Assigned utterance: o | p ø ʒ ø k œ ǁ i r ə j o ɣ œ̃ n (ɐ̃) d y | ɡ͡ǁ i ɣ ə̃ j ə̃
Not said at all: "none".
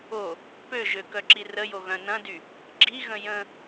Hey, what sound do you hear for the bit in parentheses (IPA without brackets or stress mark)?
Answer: ɐ̃